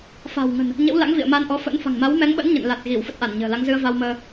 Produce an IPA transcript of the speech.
fa̤˨˩wŋə̤˨˩n | ɲə̰˧˥wla̰˧˥ŋvḭ˧˨ə̯ma˧n ʔɔ˨˦fə̰˧˥n fa̤˨˩ŋma˨˦wmɛ˨˦ŋɓə̰˧˥n ɲə̰˧˨nla˨˩t̚ɣi˧˩w fə˦˥t̚ʔa˧˩nɲə̤ː˨˩la˨˦ŋ zɨ˧ə̯va˧wməː˧

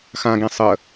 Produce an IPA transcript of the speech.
xãɡẽ sˤə

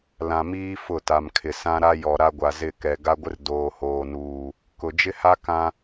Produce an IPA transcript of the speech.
lã˨miː˦ fʊ˦˨ta˨mkʰɪ˨ sã˦ɾa˦ jɔ˨ ɾa˦ɡʷa˨zɪ˦˨ kɛ˨ ɡa˦ɡʷɪ˦r doː˨hoː˨nuː˨ | kʊ˨ d͡ʒɪ˦ha˦ kã˦

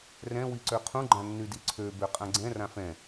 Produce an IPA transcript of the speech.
rɛ̃ wiǀøqʰũ ɡ͡ǃãnːydiǀʰø bøqʼãɡ͡ǀɛ̃ rãfɛ̃

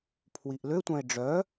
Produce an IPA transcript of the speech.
pʰwiʔløtʷœ̃e̯ ɖ͡ʐœ

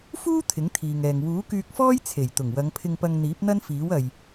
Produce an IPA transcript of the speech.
fuː˥ t̪ʰɪ˨˥ŋt̪ʰiː˨ŋɛː˨ŋ wuː˨˥kyː˧k̚fɔː˥j t͡sʰe˨˩jt̪ʊ˨˩ŋwɐ˨˧ŋ pʰɪ˧ŋpɐ˧ŋn̪iː˨˥p̚ n̪ɐ˥nfiː˨˥wɐ˨j

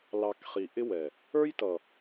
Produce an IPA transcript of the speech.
lɑ˨k χi˨ʔɪ˦wɛ˨ | ə˞˦jtʌ˨

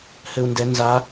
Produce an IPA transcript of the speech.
hɘu̯ndɛ nza

